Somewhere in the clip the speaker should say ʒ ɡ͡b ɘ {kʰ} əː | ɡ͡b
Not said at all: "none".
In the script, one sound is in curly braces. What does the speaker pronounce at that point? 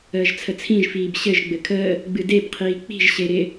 kʰ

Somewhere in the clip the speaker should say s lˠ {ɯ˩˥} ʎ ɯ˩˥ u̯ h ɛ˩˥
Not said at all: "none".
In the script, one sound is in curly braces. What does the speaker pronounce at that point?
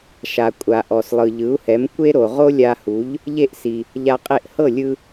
ɯ˩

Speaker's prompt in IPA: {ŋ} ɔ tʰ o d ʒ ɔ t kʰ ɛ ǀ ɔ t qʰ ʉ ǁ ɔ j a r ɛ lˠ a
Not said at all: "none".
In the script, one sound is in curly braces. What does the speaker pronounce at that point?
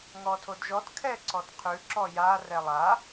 ŋ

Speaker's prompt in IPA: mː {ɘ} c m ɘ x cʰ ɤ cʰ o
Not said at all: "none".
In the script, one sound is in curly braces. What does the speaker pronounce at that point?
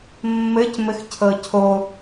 ɘ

